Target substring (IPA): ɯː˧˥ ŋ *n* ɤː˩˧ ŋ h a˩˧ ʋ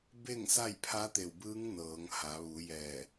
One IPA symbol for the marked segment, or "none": n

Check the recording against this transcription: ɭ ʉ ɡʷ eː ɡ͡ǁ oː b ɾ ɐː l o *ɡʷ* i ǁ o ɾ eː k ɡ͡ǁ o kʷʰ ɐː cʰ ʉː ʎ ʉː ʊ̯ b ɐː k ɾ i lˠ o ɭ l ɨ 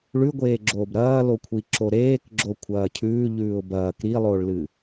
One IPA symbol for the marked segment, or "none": kʷʰ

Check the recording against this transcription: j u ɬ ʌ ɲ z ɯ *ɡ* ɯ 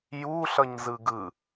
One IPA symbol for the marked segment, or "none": ɡ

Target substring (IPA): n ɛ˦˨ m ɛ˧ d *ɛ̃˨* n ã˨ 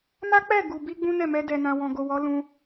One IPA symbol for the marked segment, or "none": ɛ˨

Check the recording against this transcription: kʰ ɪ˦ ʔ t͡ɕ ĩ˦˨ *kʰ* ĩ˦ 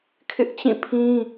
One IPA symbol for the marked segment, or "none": pʰ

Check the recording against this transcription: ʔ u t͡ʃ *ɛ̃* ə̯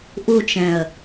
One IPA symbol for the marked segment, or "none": ɛ̃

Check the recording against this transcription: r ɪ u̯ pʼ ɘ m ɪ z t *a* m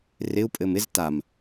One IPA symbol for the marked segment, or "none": a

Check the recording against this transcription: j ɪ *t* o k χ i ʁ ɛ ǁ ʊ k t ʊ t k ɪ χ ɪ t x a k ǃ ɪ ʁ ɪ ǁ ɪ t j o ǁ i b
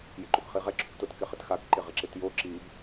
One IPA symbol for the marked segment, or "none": ǃ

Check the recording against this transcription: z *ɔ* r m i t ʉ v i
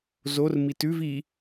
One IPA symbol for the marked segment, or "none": o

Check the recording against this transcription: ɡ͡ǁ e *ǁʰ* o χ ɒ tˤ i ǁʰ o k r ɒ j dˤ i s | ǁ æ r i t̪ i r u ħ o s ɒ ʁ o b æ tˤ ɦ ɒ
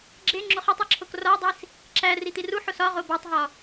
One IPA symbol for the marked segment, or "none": ŋ͡ǁ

